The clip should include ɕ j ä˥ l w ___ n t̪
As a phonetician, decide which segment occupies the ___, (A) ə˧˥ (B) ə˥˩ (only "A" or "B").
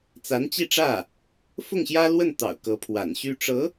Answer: B